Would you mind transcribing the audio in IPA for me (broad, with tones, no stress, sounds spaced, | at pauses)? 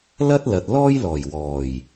l ɐ˥ t̚ l ɐ˨ t̚ l ɔː˥ j l ɔː˨˩ j w ɔː˨˩ j